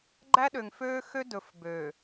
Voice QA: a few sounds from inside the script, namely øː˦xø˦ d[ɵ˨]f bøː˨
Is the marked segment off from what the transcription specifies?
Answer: no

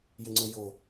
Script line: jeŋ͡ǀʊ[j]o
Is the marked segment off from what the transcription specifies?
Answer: no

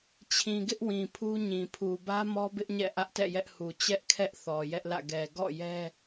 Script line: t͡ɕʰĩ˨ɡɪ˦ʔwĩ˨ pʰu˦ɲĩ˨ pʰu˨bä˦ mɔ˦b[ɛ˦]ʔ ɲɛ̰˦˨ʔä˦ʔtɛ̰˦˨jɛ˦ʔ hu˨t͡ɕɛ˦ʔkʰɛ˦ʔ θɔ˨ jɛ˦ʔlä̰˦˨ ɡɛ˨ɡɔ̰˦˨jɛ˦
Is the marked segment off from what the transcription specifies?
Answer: yes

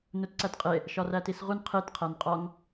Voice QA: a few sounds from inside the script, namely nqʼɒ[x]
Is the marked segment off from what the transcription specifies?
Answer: yes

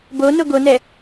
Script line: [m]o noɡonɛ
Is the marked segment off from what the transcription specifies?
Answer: yes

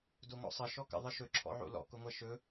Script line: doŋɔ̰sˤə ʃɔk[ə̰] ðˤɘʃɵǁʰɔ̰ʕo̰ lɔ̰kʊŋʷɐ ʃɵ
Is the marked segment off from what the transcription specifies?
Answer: no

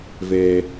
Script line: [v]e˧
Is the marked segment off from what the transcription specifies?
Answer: no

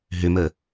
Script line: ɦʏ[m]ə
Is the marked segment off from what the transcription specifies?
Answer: no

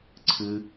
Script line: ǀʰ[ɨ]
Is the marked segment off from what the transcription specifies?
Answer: no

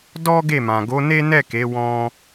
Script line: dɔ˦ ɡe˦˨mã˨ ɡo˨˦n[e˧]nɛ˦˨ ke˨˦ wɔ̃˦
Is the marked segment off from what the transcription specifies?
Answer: yes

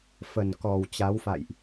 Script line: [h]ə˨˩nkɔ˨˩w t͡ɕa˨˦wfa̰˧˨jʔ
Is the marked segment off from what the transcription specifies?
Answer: yes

